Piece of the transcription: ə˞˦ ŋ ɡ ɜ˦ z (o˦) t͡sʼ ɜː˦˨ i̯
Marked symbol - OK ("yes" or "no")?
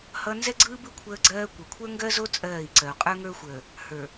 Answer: yes